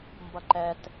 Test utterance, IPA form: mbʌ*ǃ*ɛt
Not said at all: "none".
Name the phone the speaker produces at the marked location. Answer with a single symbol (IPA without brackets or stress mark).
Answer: ǃ